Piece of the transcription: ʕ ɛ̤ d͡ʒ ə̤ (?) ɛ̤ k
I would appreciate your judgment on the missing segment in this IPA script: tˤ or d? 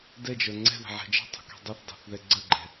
tˤ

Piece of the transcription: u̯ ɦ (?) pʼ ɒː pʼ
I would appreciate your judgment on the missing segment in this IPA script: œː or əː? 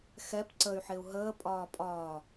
əː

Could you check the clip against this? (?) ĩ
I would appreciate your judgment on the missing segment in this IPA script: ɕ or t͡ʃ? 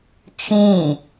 t͡ʃ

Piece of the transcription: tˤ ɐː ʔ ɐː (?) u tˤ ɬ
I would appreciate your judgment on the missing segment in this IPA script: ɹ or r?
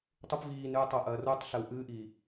r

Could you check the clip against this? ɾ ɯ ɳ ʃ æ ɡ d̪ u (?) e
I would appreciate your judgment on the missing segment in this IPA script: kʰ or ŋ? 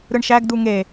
ŋ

